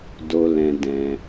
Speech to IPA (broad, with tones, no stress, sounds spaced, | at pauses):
d o˧ l ɛ̃˧ d ɛ̃˧